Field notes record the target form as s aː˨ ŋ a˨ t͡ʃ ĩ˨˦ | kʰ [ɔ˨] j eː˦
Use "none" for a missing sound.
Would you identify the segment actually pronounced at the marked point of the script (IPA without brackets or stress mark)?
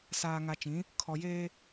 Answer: ɔ˨